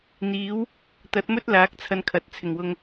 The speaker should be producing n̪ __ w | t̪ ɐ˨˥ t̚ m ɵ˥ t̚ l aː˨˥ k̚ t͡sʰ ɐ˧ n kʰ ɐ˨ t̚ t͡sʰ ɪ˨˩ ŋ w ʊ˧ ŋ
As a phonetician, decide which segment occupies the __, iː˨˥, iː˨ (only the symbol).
iː˨˥